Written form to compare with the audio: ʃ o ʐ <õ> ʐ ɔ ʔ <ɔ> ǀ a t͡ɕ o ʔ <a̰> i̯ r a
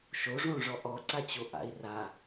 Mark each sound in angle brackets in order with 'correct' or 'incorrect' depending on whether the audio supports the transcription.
correct, correct, correct

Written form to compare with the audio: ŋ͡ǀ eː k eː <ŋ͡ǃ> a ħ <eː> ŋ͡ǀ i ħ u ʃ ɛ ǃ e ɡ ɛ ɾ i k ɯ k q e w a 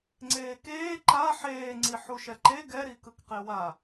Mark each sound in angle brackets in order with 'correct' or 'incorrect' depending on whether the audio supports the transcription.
incorrect: ǃ, correct

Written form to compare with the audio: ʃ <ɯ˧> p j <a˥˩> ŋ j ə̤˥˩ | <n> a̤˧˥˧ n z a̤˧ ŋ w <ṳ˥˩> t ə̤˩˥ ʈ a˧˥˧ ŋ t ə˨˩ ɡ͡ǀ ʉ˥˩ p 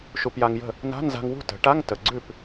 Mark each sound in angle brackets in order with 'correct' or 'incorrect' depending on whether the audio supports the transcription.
incorrect: u˧, incorrect: a˧, correct, correct

